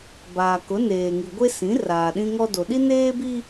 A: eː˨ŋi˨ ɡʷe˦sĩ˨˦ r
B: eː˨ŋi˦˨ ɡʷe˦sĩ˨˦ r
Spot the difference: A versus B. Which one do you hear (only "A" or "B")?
A